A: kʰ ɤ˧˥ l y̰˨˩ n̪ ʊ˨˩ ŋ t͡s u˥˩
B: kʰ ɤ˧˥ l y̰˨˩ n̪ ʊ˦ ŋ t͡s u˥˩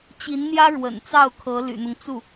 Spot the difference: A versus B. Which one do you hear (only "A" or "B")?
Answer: B